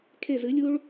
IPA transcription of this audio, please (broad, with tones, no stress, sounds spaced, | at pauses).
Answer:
kʰ e˨˩ z ɨ˩˧ lʲ u˧ ɭ